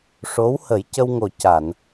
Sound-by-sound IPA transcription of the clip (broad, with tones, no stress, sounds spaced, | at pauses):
ʂ o˧˥ w h ə˨˩˦ j c ə˧ w ŋ o˨˩ c a˨˩˨ n